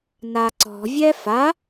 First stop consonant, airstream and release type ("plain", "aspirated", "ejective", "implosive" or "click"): click